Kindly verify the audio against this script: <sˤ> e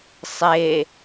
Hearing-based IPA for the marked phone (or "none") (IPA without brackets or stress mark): sˤ